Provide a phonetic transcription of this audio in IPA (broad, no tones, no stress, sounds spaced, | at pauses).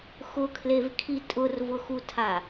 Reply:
x ʊ kʰ l e v kʰ i tʼ ʊ r v ʊ x u tʰ a